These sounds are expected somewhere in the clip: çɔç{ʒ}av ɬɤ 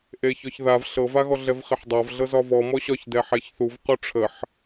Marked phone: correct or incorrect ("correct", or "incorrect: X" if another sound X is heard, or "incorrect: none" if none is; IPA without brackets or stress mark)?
incorrect: ð